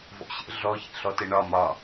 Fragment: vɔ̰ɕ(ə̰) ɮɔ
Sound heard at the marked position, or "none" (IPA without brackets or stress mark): ə̰